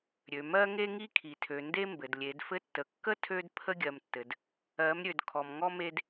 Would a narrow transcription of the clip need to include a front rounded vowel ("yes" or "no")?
yes